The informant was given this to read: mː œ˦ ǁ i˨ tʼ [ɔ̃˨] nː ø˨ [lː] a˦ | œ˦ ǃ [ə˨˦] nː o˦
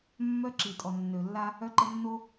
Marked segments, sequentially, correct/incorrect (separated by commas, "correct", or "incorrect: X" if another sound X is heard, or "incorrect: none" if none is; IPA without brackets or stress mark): incorrect: ɔ˨, correct, incorrect: ə˦